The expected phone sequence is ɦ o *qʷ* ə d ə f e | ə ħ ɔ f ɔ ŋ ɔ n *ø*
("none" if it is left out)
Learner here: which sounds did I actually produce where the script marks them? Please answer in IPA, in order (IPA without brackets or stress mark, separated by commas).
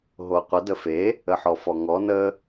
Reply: qʷ, ə